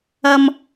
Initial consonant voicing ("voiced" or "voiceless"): voiced